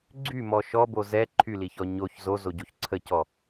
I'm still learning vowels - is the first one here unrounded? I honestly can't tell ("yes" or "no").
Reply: no